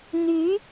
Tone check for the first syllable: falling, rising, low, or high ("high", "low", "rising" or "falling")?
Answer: rising